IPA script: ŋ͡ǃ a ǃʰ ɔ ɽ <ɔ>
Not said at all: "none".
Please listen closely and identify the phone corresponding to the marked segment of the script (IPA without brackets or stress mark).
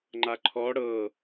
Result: ɤ